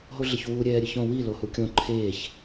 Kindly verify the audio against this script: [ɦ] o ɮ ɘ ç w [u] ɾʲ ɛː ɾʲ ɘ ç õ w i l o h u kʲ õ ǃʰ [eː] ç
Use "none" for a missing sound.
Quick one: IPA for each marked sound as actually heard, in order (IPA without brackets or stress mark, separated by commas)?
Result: ɦ, u, eː